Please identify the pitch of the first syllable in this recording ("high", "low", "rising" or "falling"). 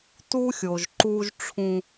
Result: high